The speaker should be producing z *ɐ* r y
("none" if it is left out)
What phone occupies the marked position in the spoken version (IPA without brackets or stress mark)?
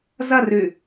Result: ɐ